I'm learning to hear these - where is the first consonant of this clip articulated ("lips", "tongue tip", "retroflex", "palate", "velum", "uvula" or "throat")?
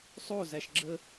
tongue tip